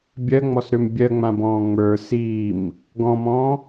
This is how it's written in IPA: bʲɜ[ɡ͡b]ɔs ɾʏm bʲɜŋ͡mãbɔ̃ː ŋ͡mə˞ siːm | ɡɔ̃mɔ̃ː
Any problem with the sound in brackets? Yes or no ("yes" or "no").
yes